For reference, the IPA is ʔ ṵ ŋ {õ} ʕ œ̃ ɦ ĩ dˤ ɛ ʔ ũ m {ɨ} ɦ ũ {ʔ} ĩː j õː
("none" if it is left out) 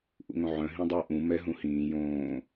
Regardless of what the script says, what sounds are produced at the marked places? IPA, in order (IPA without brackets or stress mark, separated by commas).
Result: õ, ɛ, h